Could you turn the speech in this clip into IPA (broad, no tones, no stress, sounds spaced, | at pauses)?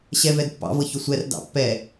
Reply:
ɕ ɛ v ɛ d pː ɑ̰ v ɤ ç ʊ sʷ ɛ r d ɑ̰ pː ɛ